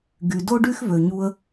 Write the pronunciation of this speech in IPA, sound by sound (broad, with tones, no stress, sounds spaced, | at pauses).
ɡ y˩ d o˥ ɖ y˥ x v ø˩ ɲ u˧ ə̯